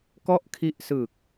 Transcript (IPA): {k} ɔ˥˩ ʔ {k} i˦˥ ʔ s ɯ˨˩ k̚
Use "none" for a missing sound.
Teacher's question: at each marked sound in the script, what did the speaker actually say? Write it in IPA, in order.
k, kʰ

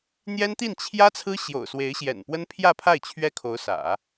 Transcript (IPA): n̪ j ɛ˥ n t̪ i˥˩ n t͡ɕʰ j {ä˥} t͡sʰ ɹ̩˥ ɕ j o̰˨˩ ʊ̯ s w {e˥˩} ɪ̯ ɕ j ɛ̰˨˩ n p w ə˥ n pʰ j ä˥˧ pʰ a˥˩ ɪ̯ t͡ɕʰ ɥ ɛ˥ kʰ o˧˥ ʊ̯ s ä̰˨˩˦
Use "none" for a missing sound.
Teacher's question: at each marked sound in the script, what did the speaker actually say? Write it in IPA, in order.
ä˥, e˧˥

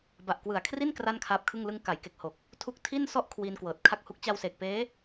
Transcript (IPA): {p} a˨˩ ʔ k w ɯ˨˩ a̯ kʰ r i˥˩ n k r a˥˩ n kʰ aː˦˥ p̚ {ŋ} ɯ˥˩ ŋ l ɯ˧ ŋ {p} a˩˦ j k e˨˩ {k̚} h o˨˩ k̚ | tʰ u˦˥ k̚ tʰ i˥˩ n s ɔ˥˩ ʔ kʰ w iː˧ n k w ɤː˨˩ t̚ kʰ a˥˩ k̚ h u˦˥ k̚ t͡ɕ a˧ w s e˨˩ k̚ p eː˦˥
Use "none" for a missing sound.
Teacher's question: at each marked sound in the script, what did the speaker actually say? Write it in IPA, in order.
b, kʰ, k, k̚

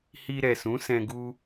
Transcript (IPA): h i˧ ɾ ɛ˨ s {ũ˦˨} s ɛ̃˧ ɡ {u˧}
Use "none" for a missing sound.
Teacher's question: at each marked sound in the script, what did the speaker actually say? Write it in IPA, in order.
ũ˨˦, u˧

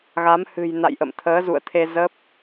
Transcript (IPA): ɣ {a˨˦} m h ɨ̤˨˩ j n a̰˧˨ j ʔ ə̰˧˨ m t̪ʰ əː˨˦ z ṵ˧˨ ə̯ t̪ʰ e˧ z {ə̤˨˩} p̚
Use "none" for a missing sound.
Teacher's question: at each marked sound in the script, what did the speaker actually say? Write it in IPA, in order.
a˨˦, ə˦˥

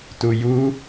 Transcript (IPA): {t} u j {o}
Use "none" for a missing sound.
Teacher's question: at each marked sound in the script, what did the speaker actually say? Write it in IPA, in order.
t, u

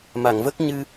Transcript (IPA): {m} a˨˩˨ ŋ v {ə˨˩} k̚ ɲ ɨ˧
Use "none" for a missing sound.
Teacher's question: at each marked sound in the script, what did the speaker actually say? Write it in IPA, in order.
m, ə˦˥

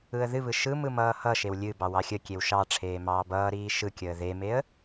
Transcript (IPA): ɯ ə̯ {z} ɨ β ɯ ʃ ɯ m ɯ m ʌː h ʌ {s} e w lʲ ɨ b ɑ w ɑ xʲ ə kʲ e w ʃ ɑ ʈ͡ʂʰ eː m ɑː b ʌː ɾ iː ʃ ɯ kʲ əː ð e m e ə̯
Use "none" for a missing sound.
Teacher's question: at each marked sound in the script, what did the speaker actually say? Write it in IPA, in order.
ð, ʃ

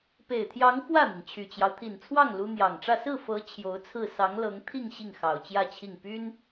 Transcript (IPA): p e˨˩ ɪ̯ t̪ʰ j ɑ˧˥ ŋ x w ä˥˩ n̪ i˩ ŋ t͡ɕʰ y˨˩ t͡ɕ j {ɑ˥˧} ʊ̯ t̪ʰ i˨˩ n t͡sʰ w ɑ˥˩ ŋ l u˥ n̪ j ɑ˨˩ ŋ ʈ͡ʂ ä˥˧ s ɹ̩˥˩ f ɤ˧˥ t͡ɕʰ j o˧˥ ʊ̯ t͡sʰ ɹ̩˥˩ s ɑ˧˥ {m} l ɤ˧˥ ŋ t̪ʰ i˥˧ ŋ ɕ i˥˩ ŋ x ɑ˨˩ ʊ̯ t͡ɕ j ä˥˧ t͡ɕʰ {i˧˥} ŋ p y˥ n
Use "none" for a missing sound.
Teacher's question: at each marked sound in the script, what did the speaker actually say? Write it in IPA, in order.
ɑ˦, ŋ, i˥˩

